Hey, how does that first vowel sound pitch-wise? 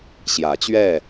rising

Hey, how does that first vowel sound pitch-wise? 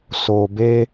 low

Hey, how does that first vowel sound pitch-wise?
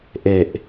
low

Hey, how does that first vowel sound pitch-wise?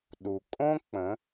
low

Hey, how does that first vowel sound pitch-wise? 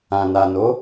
low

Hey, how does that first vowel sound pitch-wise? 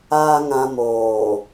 low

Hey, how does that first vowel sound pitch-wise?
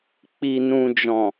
low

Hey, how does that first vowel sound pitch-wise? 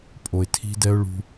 low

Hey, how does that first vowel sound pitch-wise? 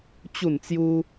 falling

